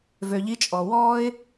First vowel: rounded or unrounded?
rounded